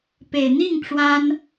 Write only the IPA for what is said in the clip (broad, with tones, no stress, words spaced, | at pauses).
pe˨˩ɪ̯ n̪i˥˩ŋ ʈ͡ʂwa˥n